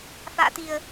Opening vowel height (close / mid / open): open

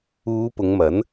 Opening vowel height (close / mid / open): close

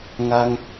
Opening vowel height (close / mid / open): open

